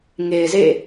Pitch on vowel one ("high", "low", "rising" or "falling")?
low